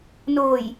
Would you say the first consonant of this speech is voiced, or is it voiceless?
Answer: voiced